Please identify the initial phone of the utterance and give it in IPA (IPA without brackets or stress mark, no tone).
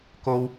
k